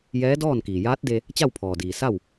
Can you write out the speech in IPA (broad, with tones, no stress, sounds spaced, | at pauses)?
j ɛː˧˥ d ɔː˥˨ n k iː˩ j aː˧˥ t̚ d e˧ | t͡ɕ a˥˨ w pʰ ɔː˩ d iː˩ s a˥˨ w